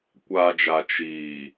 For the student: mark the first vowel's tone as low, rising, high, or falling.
low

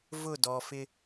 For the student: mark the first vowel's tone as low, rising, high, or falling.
falling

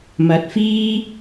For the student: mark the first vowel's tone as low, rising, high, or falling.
rising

